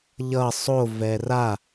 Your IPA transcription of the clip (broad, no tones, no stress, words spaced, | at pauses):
ʎʌ sˤo vɛra